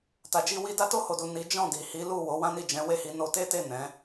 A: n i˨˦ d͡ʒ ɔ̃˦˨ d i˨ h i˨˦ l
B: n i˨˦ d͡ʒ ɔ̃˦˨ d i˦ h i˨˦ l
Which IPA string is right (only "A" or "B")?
A